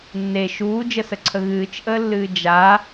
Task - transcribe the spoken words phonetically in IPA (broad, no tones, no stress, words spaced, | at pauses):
nːe ʃuːd͡ʒəsəǀʰə ɣɨːt͡ʃʔəːlːɨː d͡ʒa